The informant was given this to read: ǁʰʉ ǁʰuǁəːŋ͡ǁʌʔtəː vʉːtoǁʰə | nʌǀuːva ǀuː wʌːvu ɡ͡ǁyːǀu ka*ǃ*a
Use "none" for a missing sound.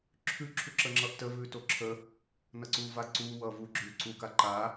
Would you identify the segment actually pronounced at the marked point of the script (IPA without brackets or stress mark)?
ǃ